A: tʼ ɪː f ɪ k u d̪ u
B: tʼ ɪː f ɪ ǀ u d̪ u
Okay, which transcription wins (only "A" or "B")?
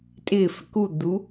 A